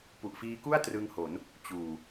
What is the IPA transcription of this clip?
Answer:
p u˨˩ ʔ f iː˧ k u˥˩ a̯ t r ɯ˧ ŋ h o˩˦ n | t͡ɕ uː˨˩

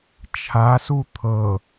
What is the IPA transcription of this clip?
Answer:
t͡ʃʰ a s u t̪ʰ ɤ

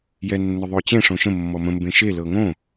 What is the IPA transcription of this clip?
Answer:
j ɛ nː ʊ ðˤ o t͡ɕ ẽ ʂ õ ʃ ə̃ mː ɔ m ə̃ m b ẽ ʃ e l ɤ ŋ õ

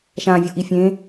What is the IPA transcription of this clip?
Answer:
ʃ ã vʲ o ʔ i fʲ ẽ

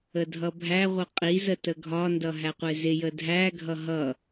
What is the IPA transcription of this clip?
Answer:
ə dʱ ʌ bʱ æ ʁʷ ə qʼ i z ə t ə ɡʱ ɒ n d ʌ ɦ æ qʷ ɪ z ɪ j ə dʱ æ ɡʱ ʌ ɦ ʌ

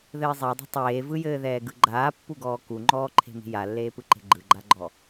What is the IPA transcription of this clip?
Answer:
ð ɘː zˤ e dˤ e̤ tˤ eː v ɯ j ɘː ð ɛː ɡ ɯ ɡ͡ǃ aː pː u ɡ ɔː k u ŋ͡ǃ ɔː ǃʰ e̤ m i̤ j a lː eː p ɯ ǃ e̤ ɡ͡ǃ ɯ ɡ͡ǃ a ɡ͡ǃ ɔ

